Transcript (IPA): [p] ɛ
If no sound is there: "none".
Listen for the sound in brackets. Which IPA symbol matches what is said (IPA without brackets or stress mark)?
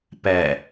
p